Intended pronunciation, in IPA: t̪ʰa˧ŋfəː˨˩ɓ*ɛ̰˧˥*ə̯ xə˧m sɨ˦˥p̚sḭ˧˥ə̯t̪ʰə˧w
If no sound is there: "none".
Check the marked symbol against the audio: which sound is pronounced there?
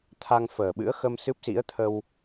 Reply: ɨ̰˧˥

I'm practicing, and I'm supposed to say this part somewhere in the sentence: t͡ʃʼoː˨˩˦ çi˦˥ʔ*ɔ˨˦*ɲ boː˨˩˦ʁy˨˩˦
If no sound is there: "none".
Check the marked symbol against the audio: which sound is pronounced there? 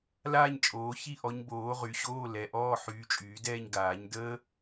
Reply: ɔ˨˦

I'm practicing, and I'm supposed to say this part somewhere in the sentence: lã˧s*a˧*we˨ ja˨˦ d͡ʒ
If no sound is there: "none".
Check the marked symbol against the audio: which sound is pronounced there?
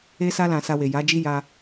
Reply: a˧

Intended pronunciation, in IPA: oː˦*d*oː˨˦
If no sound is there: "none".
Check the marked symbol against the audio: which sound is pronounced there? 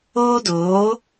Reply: d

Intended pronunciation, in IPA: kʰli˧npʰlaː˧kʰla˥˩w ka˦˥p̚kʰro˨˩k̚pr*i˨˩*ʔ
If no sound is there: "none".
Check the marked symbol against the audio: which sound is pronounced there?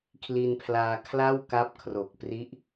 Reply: i˦˥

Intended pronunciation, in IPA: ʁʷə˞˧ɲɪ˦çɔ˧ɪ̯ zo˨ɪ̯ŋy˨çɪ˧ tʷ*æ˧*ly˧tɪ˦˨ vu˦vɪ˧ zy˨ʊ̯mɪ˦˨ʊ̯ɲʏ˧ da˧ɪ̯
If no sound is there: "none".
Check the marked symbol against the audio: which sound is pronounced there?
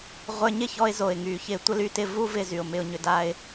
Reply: ə˧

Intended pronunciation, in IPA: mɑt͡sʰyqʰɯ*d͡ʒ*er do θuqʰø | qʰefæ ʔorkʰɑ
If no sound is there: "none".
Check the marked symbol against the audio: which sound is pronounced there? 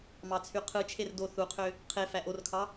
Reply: t͡ʃʰ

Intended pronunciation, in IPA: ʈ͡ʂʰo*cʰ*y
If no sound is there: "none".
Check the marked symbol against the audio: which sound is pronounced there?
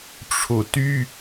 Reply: t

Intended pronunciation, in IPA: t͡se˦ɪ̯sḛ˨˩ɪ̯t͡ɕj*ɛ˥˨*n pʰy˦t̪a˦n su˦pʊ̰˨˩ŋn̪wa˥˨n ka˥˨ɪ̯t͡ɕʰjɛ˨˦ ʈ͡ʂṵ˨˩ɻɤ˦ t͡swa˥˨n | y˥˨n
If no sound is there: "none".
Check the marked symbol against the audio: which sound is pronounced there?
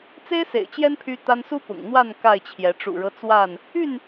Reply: ɛ˦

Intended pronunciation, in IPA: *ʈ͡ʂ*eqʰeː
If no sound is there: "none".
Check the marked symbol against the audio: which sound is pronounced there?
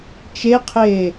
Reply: t͡ʃ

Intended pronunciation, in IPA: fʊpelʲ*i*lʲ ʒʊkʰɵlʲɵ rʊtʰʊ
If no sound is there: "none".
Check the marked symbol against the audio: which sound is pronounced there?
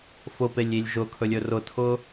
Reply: i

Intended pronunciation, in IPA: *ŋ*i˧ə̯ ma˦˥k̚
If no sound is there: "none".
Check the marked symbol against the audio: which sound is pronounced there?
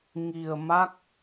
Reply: ŋ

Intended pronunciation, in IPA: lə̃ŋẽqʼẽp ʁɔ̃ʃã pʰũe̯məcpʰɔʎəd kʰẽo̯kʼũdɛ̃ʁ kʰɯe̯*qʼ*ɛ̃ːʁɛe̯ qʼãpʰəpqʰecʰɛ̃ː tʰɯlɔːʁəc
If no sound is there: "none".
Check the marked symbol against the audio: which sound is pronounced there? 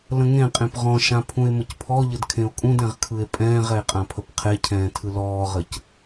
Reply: pʼ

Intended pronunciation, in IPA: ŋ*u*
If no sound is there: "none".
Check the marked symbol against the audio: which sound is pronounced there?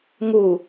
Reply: u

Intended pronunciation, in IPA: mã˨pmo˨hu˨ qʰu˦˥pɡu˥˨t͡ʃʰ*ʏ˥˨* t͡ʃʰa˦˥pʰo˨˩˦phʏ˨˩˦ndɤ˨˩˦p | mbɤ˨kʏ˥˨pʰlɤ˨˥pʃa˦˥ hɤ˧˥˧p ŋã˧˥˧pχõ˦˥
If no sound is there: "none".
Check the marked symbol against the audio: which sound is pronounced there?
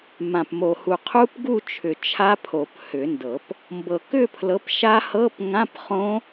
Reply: ʏ˨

